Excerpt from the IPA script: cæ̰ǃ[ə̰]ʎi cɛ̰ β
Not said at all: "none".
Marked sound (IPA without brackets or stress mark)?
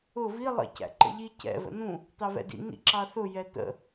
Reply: ə̰